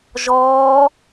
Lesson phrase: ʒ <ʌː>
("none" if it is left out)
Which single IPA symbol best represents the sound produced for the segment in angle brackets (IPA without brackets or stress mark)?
ɔː